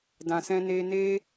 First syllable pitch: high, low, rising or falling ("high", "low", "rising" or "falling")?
low